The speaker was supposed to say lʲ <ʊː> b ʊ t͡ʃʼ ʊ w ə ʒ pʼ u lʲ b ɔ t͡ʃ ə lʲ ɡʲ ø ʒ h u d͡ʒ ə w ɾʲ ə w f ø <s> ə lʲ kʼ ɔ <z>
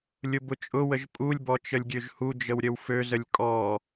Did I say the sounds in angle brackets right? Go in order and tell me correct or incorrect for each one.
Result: incorrect: ʊ, incorrect: z, incorrect: none

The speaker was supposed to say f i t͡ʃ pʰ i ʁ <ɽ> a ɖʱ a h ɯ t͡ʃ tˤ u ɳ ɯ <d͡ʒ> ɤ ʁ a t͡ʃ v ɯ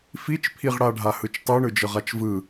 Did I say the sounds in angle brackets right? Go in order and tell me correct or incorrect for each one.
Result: correct, correct

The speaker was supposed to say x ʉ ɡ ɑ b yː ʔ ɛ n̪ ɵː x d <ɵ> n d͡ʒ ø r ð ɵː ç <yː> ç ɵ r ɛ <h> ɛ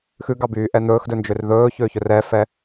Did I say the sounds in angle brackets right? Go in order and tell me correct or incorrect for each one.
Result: correct, incorrect: øː, incorrect: f

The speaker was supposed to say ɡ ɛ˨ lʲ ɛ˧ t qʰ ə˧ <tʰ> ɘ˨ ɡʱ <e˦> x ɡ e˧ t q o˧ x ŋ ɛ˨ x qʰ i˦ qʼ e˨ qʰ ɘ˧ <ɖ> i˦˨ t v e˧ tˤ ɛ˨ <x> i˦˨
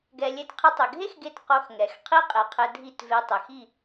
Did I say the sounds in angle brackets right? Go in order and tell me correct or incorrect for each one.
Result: incorrect: tˤ, correct, incorrect: dʱ, correct

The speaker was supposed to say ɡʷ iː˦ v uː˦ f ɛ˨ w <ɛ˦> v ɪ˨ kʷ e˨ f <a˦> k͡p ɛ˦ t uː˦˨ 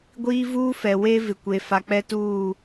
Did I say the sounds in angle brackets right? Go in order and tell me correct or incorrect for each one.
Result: incorrect: e˦, incorrect: a˨

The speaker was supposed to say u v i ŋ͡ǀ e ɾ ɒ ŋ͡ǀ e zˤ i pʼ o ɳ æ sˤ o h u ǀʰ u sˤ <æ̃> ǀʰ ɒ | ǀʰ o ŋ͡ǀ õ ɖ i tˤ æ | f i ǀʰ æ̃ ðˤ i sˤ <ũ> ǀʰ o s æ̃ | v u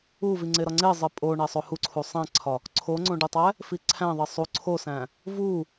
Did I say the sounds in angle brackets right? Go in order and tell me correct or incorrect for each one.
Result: correct, incorrect: u

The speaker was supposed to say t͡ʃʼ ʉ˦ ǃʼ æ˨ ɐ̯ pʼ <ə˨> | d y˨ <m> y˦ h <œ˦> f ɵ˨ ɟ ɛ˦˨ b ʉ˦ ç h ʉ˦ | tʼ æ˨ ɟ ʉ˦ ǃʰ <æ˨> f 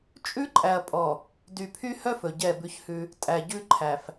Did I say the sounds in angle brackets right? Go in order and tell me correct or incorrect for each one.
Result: incorrect: ɔ˨, incorrect: pʰ, correct, correct

